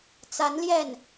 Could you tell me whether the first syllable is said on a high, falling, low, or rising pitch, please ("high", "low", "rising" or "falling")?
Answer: rising